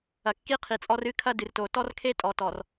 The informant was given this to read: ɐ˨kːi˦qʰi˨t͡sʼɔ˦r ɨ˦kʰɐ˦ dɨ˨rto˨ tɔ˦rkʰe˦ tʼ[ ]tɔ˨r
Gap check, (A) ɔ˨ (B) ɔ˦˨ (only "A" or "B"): A